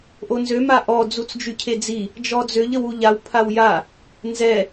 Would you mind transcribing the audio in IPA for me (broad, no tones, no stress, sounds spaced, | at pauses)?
ʔ o n z ø m a ʔ ɔ d͡z u t͡s d͡ʒ y cʰ e d͡z i | d͡ʒ ɔ d͡z ø ʎ ə w u ʎ a w pʰ a w j a | n z ɛ